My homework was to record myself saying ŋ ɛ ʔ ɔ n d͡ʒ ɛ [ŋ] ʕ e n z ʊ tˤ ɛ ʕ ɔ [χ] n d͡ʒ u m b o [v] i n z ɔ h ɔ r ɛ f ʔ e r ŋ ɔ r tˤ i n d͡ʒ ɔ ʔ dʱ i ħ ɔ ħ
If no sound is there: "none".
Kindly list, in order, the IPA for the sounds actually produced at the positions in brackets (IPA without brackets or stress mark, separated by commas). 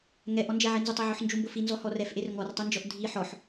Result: none, ħ, f